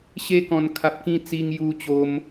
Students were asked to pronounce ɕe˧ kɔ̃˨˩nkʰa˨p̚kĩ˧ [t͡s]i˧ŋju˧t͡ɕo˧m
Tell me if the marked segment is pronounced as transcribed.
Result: yes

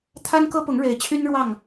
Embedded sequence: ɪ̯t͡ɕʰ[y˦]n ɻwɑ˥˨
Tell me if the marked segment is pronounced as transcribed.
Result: yes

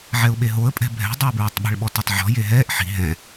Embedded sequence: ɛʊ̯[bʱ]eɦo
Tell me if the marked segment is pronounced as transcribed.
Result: no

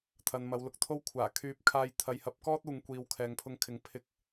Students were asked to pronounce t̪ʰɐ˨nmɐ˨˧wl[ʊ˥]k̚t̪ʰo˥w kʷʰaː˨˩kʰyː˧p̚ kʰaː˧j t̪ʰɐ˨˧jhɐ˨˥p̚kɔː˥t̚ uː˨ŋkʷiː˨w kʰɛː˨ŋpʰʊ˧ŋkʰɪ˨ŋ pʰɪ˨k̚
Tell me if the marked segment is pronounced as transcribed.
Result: no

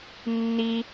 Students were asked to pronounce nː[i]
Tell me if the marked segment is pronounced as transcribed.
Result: yes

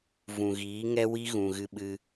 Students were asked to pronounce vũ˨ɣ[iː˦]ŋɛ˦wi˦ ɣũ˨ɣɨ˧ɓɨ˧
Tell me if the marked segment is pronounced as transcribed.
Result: no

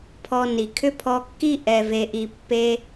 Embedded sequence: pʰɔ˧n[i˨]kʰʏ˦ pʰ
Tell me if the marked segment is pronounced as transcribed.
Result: yes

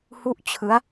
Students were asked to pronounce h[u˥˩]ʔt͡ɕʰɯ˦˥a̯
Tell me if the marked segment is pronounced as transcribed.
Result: yes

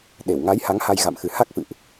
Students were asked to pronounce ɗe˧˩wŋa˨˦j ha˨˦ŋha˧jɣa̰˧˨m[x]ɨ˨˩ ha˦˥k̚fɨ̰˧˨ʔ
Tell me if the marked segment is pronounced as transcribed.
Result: yes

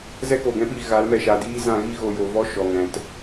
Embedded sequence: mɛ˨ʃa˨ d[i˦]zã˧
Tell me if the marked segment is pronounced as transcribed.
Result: no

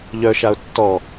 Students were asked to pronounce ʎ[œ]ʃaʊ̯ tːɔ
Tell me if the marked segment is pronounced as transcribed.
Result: yes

